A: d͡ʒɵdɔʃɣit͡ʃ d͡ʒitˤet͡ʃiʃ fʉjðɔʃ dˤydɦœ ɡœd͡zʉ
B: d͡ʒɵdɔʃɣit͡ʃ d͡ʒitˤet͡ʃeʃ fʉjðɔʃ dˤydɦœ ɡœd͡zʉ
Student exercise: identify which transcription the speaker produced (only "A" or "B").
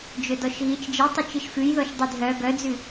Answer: A